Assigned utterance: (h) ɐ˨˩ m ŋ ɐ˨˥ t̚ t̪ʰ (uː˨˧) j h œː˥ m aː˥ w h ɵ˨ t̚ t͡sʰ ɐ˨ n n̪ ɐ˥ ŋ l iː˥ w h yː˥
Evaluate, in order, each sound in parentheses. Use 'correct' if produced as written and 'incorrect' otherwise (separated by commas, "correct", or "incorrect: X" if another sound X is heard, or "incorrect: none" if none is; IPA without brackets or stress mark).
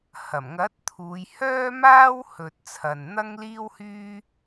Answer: correct, correct